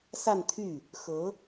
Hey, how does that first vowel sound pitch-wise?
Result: falling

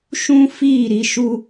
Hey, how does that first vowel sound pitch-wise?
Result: high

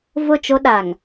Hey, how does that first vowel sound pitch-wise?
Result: falling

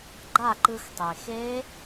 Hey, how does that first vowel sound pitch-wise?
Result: falling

